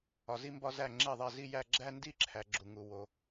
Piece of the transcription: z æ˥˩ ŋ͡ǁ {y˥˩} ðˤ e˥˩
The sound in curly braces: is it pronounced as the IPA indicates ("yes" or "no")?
no